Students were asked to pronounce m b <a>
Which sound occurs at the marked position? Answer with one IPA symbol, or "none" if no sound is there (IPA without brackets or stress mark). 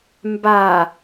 a